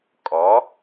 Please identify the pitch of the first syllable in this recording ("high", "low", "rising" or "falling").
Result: rising